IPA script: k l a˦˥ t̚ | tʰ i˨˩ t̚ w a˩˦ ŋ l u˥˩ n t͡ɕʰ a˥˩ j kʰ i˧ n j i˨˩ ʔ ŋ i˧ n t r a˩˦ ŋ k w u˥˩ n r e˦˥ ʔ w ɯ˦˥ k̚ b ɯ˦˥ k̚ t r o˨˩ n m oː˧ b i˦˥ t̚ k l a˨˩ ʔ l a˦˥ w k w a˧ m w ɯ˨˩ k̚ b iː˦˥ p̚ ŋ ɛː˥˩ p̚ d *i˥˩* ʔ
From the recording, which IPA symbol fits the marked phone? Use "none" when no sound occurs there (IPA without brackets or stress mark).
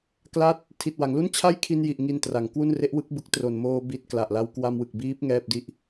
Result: i˥˩